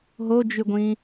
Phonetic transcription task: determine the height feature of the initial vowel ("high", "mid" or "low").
mid